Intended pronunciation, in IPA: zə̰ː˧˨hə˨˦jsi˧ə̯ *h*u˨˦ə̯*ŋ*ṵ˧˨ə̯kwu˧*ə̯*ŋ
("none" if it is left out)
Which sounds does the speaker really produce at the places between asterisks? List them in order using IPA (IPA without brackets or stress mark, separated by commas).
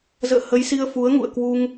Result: f, ŋ, none